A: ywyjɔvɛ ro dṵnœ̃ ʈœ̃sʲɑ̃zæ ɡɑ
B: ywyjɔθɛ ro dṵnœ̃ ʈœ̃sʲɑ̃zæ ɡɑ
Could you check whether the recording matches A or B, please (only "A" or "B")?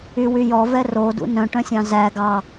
A